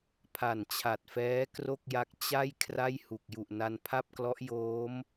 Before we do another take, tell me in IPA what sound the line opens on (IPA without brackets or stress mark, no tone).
pʰ